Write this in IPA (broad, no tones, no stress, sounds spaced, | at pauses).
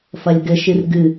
f ɐ lʲ ɡ ɘ ʃ ɨ r ɡ ɨ